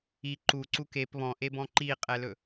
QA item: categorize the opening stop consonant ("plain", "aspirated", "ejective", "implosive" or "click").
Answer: click